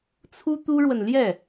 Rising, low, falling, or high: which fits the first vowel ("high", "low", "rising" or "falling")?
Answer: high